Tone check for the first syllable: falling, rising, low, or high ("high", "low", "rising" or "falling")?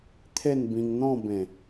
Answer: falling